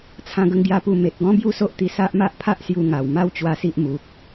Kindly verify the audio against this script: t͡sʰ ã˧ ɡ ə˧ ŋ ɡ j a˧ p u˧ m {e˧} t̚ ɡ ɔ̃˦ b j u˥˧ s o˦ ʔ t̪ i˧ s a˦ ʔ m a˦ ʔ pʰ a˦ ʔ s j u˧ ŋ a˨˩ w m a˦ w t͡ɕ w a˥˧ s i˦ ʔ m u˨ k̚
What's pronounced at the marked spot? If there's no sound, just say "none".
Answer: e˨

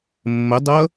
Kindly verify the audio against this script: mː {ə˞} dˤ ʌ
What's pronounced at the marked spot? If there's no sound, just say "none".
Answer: ə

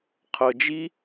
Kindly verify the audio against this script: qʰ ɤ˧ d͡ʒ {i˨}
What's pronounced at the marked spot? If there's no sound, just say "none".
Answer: i˦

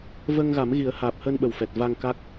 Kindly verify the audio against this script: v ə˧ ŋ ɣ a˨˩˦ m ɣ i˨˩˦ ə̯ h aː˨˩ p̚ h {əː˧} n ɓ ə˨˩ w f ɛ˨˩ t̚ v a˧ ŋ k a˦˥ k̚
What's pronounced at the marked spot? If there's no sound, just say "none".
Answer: əː˧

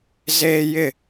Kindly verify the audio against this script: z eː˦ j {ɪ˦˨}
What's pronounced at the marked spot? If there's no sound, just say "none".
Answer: ɪ˦˨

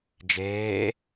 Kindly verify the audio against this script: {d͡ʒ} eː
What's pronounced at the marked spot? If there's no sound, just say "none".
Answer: d͡ʒ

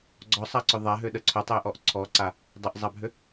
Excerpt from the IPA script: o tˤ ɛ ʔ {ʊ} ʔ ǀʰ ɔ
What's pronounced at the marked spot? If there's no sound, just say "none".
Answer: ɔ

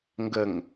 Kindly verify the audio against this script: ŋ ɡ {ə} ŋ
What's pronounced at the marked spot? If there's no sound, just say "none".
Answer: ə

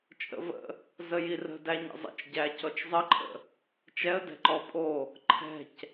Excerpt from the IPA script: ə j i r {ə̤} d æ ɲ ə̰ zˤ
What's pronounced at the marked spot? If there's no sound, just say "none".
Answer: ə̤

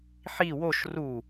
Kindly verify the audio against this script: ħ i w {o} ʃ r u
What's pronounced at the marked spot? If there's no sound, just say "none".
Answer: o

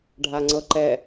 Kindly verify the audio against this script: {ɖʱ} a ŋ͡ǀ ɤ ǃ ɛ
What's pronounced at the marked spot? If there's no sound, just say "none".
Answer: ɖʱ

